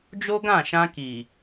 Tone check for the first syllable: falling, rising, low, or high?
high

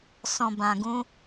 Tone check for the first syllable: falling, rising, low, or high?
low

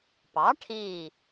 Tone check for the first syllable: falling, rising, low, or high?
rising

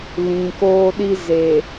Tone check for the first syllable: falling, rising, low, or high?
low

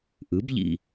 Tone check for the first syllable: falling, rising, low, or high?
rising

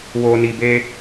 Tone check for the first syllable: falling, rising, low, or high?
low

